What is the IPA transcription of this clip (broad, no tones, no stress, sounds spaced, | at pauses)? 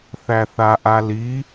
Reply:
θ æ θ a ʔ a l i